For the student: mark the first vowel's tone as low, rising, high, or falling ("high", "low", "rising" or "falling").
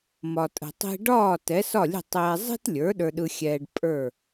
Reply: low